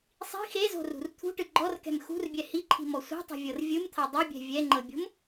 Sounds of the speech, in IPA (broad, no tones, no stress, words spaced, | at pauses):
sˤi̤ xezo̤rṳr t̪ʰṳʈɯ ɡ͡ǃɔrkɛ̤m xṳrbʲɛ hiǃʰi̤mɔ sʷɛ̤tˤɛ̤vʲɤr vʲɯmt̪ʰa dˤɯbʲɛ̤ vʲɛŋ͡ǃɤbʲo̤m